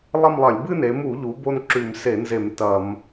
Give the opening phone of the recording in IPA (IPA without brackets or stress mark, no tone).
lˠ